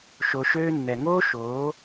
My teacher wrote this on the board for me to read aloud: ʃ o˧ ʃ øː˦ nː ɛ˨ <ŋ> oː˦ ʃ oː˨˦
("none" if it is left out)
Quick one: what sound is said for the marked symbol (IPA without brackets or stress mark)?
ŋ